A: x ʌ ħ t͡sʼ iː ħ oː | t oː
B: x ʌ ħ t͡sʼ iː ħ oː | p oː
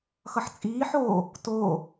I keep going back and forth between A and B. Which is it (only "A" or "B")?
A